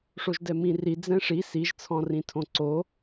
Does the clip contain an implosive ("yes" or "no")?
no